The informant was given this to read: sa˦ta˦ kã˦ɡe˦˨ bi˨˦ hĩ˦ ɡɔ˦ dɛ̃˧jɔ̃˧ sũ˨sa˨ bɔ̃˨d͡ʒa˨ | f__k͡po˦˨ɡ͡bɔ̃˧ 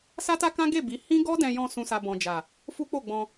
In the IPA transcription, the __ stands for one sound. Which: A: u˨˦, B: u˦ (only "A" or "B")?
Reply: B